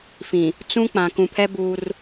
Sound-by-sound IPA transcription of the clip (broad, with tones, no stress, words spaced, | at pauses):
fĩ˨ | t͡sũ˦ k͡pã˨kũ˨pʰɛ˦ buː˦r